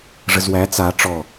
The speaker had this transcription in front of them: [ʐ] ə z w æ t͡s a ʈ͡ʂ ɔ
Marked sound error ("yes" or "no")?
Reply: no